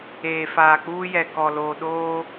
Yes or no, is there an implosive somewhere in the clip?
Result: yes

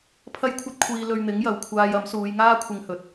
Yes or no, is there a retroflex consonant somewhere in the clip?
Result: no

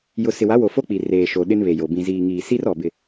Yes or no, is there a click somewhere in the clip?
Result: no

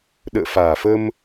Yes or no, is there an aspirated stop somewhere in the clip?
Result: no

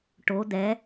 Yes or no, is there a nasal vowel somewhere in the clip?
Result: no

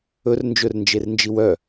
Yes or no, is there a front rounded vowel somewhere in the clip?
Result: yes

